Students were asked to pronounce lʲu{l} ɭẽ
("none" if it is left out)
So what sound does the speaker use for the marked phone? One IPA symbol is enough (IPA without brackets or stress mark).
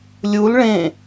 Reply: l